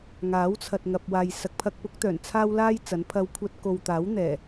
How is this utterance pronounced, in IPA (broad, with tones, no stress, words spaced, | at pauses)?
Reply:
ŋaː˨˥wt͡sʰɐ˨t̚ŋɐ˨p̚ waː˨j sɐ˨k̚pʰɐ˧k̚pʊ˨˥k̚t̪œː˨˩n t͡sʰaː˥wlaː˥jt͡sɐ˨˥npʰɐ˧w kʷʰɐ˧t̚ko˨wt̪aː˨˥w n̪ɛː˨˩